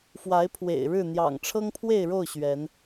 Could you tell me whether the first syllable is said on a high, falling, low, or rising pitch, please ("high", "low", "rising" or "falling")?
rising